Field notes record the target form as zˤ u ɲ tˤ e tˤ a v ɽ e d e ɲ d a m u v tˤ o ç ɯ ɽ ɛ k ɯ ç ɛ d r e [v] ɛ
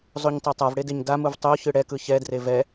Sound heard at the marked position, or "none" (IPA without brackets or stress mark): v